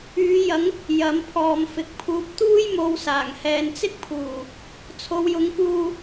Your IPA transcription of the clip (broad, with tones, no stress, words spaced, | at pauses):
yː˨˧jɐ˨˧ŋ | jɐ˨˧mpʰɔː˨mfɪ˨k̚pʰuː˧p̚ t̪uː˥jmo˧w saː˨˩ŋhɛː˨nt͡sɪ˥k̚pʰuː˨˩ | t͡sʰo˨˧wjʊ˨˧ŋkuː˧